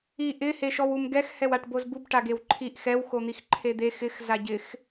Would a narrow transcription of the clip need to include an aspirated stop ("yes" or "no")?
yes